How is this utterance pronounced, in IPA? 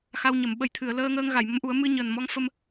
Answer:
x a˧ w ɲ ə˨˩˨ m ɓ ə˨˩˦ j t̪ʰ ɨ˨˩˨ ə̯ l əː˧ ŋ əː˧ ŋ ɣ a˨˩˨ j m ə˧˥ m ʔ u˨˩˦ ə̯ m ɨ˧ ɲ əː˨˩ n m ɔ˧˥ ŋ f ə˧ m

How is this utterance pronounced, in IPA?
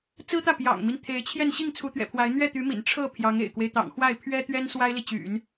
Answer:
t͡s ɹ̩˥ t̪ ä˥˩ p j ɑ̰˨˩ ŋ m i˦ n t̪ʰ e˧˥ ɪ̯ t͡ɕʰ j ɛ˥˧ n ɕ i˥˩ ŋ t͡sʰ u˧˥ t̪ ɥ ɛ̰˨˩ pʰ w a˧˥ ɪ̯ n̪ ɥ ɛ˥˩ t̪ y˧˥ m ḭ˨˩ n ʈ͡ʂʰ ɤ˥˩ pʰ j ɑ˧˥ ŋ ḛ˨˩ ɪ̯ k w e˦ ɪ̯ t̪ ɑ̰˨˩ ŋ x w a˥˩ ɪ̯ pʰ ɥ ɛ˥ t̪ ɥ ɛ˥ n s w a˥ ɪ̯ l i˨ t͡ɕ y̰˨˩˦ n

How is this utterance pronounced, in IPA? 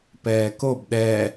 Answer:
p ɛː k o b ɗ ɛ

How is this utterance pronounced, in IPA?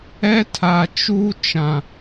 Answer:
ɛ˦ tʰ a˨ t͡ʃ uː˦ t͡ʃ ã˨

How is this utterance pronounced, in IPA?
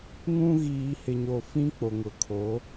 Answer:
ŋ ũ˦ ɣ iː˨ h ɪ˨ ɲ o˨ f ĩ˦ k͡p o˨ ŋ ʊ˨˦ kʰ o˨˦

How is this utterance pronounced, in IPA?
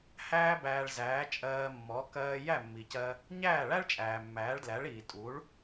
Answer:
h æː˥ b æː˧ ɭ z æː˩˥ t͡ʃʼ ɜː˧ mː ɔ˩˥ k ɜː˧ j æ˥˩ mː i˩ c ɜ˧ | ɲ æː˥˩ ɭ æ˥ ɭ t͡ʃʼ æː˩ mː æː˩˥ ɭ d l æ˩˥ ɭ iː˩ tʼ u˩˥ ɭ

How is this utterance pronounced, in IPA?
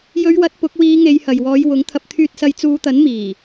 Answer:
j ɵ˨˧ ɥ w ɐ˨˥ t̚ p ʊ˨˥ k̚ w iː˨˧ ŋ e˨˧ j h ɐ˨ j w ɔː˨˧ j w ʊ˨˥ ŋ t̪ʰ ɐ˨ p̚ t̪ʰ yː˧ t̚ s ɐ˨˧ j t͡s uː˨˧ t̪ ɐ˨˥ n m iː˨˩

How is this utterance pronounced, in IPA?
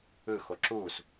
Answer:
ɯ x o ǁ u s

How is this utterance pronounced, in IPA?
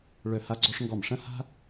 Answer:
ɭ œ˥˩ h a˥ ɡ͡ǀ ɔ˥ ʂ ŋ ɡ ɔ˥˩ m ʂ ɐ̃˥ h a̤˥

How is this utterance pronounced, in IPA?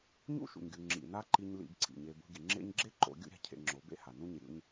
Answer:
ɲ ṵ˦ ʃ ṵ˨ ɲ ɡʲ u˨ ŋ͡ǁ ḭ˨ n a˦ ǃ i˧ ɲ l ḭ˧ b ǀ ḭ˨ ɲ e˧ b ṳ˦ ɡʲ ɨ˨ ŋ͡ǁ ḛ˦ ɲ ɡ͡ǁ e˦ ǃ o̰˨˦ ɡʲ ṵ˦ ɾʲ a̤˦ cʰ ḛ˧ ŋ͡ǁ o˨˦ b ḛ˦ h a˨ n ũ˦ ɲ ɨ˨ ɾʲ ṵ˦ ɲ

